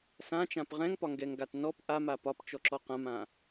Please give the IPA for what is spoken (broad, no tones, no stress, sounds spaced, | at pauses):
s ã t͡ʃ ã p ʁ ɛ̃ ŋ p ɒ ŋ ɡ ɛ ŋ ɡ a t n ɔ p ʔ a m a p ɒ p t͡ʃ ɔ ǁ ɔ q ã m ã